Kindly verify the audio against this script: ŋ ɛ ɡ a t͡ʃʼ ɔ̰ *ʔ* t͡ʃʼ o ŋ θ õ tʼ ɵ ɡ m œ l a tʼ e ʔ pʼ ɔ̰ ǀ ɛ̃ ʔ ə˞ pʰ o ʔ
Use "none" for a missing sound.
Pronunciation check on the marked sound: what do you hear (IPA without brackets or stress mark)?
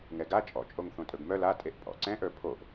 none